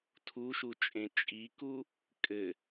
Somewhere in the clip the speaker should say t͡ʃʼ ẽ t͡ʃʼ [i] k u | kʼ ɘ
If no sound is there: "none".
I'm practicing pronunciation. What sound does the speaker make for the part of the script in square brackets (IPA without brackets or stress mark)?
i